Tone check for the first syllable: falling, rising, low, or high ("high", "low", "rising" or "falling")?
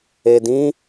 low